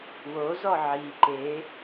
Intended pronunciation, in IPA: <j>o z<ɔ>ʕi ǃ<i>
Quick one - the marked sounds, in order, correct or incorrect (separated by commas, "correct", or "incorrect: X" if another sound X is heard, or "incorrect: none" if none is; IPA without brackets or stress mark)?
incorrect: w, correct, incorrect: e